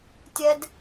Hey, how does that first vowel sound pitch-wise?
high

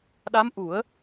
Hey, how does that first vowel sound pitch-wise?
rising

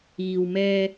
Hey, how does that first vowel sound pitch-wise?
low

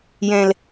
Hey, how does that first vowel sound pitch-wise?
low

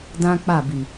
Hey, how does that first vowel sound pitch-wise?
high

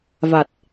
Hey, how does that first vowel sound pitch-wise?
low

